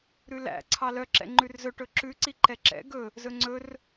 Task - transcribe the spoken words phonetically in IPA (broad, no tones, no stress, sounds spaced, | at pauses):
ɾ ʉ l æ̰ ǀʰ ɑ l œ ǁ ɛ̰ ŋ͡ǃ ʉ r z ɵ ʈ ɵ ǁ ʉ ǀ i ǃ ɛ ǁ ɛ̰ ɡ ɵ | z ɵ ŋ͡ǀ ɵ r